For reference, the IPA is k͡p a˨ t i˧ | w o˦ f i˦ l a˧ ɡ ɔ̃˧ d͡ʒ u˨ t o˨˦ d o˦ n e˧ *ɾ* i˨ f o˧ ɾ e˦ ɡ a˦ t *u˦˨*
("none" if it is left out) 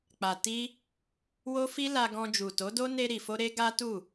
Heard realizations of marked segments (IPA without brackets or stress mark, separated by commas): ɾ, u˦˨